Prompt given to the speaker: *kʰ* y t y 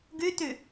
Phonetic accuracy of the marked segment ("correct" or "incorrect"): incorrect